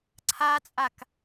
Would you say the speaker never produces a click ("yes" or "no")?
no